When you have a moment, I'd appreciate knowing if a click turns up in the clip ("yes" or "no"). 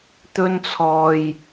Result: no